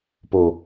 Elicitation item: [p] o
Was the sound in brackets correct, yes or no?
yes